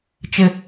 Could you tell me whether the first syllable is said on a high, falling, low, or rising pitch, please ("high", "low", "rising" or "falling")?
high